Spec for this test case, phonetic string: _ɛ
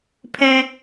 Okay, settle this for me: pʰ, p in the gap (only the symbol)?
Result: pʰ